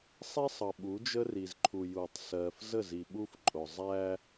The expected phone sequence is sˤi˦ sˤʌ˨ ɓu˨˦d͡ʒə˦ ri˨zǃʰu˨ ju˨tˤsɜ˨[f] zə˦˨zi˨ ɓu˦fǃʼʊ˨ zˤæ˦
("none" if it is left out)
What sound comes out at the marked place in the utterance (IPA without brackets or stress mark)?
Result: f